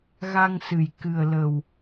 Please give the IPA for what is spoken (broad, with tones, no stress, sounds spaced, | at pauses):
ɣ a˧ ŋ s ɨ˨˩ j k ɨ˨˩ ə̯ l ə˨˩ w